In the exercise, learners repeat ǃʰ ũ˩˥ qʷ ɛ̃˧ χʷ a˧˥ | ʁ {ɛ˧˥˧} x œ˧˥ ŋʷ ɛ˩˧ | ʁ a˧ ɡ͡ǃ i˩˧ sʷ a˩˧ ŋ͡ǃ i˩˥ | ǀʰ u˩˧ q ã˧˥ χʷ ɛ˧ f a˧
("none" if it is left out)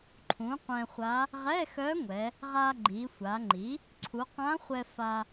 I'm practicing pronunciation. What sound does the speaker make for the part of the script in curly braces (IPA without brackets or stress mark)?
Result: ɛ˧˥˧